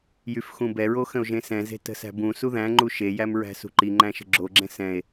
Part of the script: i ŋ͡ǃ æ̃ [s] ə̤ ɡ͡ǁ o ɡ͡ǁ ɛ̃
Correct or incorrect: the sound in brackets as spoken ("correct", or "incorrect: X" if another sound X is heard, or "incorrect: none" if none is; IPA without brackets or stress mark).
incorrect: ʃ